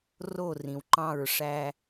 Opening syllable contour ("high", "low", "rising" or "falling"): falling